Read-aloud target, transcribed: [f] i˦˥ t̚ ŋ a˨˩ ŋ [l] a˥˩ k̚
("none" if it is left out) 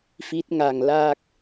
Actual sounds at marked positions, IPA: f, l

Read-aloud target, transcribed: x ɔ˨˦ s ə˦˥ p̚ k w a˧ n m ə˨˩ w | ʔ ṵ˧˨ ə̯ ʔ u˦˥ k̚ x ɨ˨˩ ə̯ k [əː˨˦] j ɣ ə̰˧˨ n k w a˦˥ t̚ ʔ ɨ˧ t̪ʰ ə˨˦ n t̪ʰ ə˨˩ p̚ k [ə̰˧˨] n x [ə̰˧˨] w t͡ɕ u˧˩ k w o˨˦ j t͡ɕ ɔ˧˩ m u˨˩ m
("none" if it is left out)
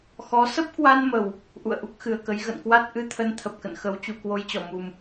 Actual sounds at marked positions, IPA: ə˨˦, ə̰˧˨, ə˨˦

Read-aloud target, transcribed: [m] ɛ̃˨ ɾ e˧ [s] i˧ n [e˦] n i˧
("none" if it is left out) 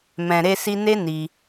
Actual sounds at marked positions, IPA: m, s, e˦

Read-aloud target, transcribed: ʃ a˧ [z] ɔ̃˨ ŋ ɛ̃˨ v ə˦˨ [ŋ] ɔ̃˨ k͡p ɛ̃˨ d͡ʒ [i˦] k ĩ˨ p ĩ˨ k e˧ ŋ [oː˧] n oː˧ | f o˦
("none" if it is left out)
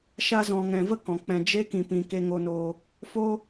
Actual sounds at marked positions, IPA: z, k, e˦, o˧

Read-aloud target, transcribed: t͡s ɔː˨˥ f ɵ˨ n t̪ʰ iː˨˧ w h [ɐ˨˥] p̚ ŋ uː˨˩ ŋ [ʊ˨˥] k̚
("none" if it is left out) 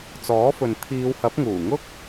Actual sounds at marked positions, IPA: ɐ˨˥, ʊ˥

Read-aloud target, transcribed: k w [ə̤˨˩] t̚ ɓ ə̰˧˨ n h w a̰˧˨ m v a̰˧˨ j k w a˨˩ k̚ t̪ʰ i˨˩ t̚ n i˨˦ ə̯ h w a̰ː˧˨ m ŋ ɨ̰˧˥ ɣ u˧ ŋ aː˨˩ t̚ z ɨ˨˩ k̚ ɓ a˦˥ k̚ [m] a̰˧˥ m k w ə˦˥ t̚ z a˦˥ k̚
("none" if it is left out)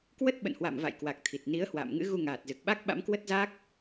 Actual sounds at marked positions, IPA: ə˦˥, ɓ

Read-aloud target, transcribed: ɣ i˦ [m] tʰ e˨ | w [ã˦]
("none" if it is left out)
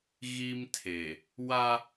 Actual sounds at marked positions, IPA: m, a˦

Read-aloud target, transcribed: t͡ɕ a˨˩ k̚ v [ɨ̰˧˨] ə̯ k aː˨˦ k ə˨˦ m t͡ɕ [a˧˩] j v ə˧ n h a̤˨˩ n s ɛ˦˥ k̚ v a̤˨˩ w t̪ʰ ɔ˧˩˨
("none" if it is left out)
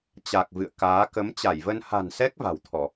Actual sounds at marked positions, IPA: ɨ̰˧˨, a˧˩

